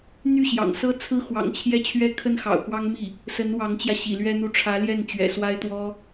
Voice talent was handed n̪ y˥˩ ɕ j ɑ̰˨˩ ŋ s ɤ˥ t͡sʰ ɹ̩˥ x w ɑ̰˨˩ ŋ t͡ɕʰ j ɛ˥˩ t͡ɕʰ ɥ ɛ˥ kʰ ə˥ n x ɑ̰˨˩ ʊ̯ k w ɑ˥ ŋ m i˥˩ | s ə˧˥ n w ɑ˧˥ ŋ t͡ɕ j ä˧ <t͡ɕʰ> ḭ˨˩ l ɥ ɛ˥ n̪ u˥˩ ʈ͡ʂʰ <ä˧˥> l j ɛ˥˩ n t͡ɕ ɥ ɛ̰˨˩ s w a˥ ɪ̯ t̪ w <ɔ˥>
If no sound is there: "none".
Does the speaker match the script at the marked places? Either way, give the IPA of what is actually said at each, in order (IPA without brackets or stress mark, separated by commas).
ɕ, ä˧˥, ɔ˥